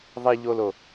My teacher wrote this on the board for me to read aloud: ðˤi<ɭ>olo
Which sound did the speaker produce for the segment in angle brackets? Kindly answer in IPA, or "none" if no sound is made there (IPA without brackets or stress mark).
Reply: ʎ